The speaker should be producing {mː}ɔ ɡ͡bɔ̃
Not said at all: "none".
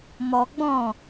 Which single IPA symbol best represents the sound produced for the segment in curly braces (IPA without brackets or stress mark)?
m